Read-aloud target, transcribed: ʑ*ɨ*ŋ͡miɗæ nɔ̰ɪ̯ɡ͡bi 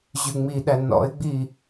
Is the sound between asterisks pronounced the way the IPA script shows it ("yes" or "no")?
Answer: no